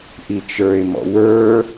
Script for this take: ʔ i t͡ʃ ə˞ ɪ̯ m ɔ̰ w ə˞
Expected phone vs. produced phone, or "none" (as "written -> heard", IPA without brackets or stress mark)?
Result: none